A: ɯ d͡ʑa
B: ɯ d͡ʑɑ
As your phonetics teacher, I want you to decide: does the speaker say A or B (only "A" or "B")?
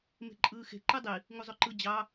B